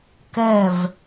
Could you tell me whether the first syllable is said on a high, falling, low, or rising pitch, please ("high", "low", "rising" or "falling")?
falling